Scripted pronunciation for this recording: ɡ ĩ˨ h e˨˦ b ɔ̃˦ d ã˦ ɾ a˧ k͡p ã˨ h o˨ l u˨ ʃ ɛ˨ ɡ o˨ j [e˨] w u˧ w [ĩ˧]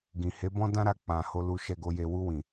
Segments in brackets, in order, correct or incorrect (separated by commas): correct, incorrect